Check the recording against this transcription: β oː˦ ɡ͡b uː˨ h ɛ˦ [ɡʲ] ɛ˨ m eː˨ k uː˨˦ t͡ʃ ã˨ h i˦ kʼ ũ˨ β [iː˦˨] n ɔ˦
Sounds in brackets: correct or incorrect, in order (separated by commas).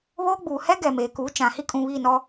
incorrect, correct